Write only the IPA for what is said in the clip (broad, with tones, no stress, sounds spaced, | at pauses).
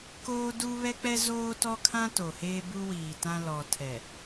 k oː˦ d u˦ β ɛ˦ k͡p ɛ˦ z oː˦ t ɔ˦ kʰ ã˦ t o˨ h eː˦ b u˦ w iː˨ t ã˦ l ɔ˨ tʰ ɛ˨